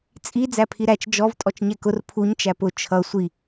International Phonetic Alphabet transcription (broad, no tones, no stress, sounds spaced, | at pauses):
t͡sʼ i d͡z æ pʰ i ɾ æ t͡ʃ d͡ʒ ɔ v tʼ ɔ t͡ʃ ɲ ɛ k ʊ r pʰ u ɲ t͡ʃ æ p ʊ t͡ʃʰ ʌ sʷ i